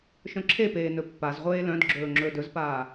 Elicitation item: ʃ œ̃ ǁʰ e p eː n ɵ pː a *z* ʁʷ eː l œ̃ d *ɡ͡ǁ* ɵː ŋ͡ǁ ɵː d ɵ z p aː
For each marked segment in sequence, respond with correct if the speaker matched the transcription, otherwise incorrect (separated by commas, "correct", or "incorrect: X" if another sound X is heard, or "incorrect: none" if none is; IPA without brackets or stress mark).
correct, correct